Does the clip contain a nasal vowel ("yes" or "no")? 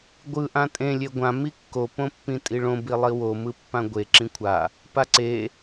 yes